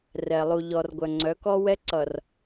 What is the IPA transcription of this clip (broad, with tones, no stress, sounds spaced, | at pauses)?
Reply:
r ɛ˨ lˠ u˨ ʎ ɔ˨ r ɡʷ œ˨ ŋ͡ǀ œ˨˦ k ɔ˦ w ɛ˦ ǀ ʌ˨ r